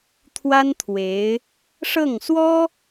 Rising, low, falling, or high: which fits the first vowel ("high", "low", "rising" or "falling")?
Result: high